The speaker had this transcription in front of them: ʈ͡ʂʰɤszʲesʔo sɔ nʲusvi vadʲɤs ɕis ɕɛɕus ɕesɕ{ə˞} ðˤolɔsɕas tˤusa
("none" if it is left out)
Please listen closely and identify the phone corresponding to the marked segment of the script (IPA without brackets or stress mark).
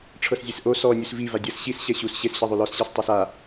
ɤ